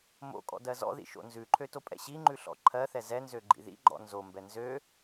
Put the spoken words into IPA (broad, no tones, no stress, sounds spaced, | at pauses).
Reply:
m o̰ kʼ ɔ̰ d ɜ z ɔ̰ ð ḭ ʃ o̰ n z ʉ ǃʰ ø t o pʼ ɛ̰ ɕ i ŋ͡ǃ ʉ ɬ ɔ̰ ǃʰ ɜ θ ɛ z ɛ n z ø ɡ͡ǃ ḭ ð ḭ ɡ͡ǃ ɔ̰ n z o m b ɛ n z ø